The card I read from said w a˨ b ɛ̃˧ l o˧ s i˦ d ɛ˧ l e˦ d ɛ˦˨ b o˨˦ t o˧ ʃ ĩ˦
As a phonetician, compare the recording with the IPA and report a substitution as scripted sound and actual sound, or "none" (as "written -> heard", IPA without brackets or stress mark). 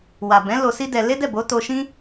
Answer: ɛ̃˧ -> ɛ̃˨˦